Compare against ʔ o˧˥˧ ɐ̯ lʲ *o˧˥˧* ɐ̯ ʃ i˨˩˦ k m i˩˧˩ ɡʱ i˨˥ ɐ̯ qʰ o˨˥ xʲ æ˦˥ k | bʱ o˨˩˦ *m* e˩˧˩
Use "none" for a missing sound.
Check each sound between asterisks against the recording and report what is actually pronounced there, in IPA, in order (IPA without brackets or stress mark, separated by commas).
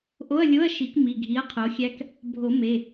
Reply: o˧˥˧, m